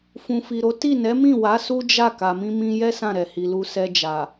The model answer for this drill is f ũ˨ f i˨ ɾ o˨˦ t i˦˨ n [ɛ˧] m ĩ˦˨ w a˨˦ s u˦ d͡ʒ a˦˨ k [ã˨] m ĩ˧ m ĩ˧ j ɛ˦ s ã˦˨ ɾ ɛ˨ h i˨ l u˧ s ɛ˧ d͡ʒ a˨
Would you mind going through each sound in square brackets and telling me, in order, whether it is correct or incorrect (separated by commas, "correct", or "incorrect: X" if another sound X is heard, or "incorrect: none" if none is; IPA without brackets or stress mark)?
incorrect: ɛ˨˦, incorrect: a˨